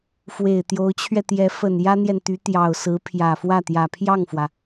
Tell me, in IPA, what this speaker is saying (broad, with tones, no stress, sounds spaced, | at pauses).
f w e˨˩ ɪ̯ t̪ j o˧˥ ʊ̯ t͡ɕʰ ɥ ɛ˧ t̪ j ɛ˧˥ f ə˨˩ n j ä˥ n̪ j ɛ˨ n t̪ y˧˥ t̪ j ɑ˨˩ ʊ̯ s ɹ̩˧˥ pʰ j ä˨˩ f w ä˥˩ t̪ j ä˨˩ pʰ j ɑ˥˩ ŋ f w ä˩